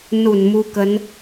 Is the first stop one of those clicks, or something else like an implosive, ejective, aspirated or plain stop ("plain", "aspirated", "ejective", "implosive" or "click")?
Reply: plain